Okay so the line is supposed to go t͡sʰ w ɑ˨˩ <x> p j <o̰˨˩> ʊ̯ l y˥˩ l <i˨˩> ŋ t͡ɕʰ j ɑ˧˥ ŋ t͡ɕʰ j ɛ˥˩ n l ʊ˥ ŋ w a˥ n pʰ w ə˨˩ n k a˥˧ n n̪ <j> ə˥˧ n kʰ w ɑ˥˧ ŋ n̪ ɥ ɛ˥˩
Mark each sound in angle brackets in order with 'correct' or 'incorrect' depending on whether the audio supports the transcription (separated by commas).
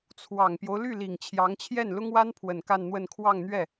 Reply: incorrect, incorrect, correct, incorrect